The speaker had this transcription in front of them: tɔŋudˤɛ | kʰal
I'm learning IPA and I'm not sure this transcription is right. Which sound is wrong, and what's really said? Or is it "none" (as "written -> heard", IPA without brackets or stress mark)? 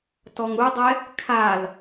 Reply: none